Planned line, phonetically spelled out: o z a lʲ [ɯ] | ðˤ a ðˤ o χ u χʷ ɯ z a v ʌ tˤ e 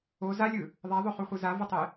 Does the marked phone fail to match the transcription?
no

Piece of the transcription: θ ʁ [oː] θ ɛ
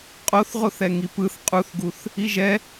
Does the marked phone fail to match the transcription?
yes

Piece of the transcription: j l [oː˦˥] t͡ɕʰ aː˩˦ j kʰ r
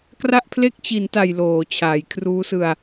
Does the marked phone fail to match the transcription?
yes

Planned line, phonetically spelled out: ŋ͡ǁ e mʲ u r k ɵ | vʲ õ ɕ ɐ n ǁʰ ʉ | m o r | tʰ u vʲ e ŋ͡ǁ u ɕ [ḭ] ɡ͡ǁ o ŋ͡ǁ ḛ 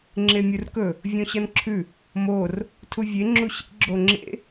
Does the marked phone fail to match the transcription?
no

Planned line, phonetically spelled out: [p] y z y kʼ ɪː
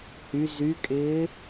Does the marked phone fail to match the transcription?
yes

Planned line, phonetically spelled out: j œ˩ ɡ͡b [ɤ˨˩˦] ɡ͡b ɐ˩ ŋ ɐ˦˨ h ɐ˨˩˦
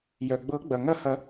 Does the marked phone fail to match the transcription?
no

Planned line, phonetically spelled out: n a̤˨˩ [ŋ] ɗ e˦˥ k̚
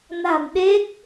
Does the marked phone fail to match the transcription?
yes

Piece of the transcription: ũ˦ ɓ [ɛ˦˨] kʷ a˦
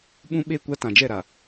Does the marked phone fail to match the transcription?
yes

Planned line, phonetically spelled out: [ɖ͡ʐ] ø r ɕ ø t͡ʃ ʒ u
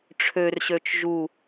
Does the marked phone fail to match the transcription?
yes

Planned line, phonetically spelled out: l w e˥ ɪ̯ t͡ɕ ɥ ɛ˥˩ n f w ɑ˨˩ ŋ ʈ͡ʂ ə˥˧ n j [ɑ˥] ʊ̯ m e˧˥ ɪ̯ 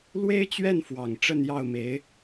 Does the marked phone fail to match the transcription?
yes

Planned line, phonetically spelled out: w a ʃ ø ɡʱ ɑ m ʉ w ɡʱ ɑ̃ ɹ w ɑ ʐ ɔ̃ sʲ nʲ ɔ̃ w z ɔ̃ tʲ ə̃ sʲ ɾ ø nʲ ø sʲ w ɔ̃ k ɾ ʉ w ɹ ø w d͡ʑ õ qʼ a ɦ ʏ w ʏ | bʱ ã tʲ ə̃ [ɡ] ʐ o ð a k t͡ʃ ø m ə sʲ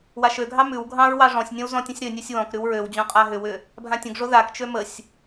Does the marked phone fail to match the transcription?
no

